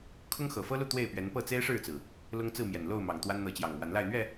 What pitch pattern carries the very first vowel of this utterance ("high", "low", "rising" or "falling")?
high